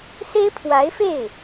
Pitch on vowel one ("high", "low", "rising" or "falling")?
high